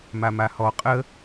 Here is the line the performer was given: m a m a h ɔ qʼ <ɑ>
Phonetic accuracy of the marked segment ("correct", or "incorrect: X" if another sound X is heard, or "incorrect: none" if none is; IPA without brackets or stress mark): incorrect: ə